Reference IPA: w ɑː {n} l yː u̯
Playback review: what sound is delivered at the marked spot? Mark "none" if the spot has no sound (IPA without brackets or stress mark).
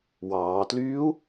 t